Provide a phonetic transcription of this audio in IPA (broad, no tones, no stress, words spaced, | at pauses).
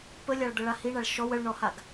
pəlʲaɭd̪əɭa hiɳaɭ ʃɔw əɭɳɔhaɡ